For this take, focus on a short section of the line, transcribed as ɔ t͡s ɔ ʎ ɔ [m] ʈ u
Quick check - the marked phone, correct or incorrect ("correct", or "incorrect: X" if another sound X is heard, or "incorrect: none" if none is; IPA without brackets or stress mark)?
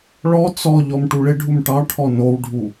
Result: correct